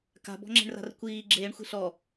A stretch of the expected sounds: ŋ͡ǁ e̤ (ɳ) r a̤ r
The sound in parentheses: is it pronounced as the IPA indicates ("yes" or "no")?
yes